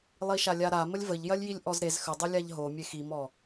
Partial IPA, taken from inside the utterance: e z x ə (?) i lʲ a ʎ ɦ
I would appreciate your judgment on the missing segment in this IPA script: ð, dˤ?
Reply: dˤ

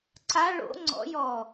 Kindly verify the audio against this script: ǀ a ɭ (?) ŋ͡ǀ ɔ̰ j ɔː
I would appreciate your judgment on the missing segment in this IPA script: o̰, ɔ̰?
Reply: o̰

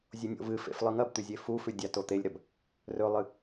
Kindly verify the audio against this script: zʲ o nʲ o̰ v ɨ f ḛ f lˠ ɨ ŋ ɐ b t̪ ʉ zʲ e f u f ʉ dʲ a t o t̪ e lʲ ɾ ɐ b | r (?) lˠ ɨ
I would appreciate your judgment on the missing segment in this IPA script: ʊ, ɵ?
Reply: ɵ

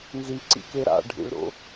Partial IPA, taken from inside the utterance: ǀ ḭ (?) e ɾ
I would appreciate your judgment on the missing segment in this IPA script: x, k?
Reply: k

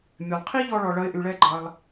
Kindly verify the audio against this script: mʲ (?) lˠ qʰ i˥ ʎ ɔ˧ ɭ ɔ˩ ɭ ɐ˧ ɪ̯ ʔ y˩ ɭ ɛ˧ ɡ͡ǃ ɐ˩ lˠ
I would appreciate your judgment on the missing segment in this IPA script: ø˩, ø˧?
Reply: ø˩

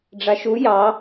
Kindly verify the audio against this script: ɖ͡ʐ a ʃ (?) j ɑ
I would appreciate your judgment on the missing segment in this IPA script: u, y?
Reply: u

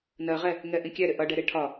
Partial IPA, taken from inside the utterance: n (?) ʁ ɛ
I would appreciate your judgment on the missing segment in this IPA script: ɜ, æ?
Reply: ɜ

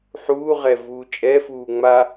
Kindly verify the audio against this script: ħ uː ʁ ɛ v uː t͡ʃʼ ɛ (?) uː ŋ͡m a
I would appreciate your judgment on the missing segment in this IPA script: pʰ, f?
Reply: f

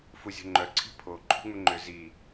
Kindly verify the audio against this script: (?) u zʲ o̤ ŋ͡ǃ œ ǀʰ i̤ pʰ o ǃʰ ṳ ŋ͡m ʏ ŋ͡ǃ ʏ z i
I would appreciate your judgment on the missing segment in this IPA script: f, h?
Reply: f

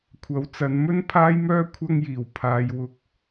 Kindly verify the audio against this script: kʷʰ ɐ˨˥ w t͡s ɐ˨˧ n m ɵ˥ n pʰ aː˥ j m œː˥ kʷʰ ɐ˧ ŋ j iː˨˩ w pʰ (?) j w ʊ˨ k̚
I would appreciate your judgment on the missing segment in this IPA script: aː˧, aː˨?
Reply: aː˨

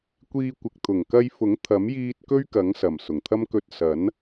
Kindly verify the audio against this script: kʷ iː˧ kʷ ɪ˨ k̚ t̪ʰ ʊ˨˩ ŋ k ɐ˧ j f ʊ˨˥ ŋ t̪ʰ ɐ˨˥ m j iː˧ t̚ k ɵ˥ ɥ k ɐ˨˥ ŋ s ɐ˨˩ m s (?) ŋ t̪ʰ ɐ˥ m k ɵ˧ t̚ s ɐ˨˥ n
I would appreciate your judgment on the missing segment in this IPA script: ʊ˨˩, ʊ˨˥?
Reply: ʊ˨˩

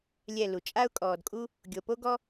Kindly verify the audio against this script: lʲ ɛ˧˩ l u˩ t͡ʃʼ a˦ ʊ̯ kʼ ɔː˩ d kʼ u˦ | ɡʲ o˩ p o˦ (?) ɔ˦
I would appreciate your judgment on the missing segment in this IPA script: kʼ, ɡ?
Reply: ɡ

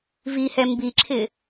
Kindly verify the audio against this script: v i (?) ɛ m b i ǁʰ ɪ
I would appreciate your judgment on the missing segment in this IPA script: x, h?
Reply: h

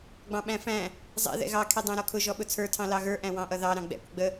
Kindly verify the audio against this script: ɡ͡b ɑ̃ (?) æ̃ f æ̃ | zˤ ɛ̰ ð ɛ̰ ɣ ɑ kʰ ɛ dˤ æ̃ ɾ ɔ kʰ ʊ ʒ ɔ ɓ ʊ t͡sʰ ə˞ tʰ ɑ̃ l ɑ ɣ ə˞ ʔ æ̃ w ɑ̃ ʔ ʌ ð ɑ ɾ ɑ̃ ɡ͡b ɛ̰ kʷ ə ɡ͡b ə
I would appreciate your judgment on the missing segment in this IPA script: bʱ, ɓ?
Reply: ɓ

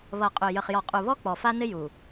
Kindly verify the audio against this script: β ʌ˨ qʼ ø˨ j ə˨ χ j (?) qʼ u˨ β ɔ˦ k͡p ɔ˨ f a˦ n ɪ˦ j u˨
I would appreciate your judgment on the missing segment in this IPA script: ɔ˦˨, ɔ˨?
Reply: ɔ˨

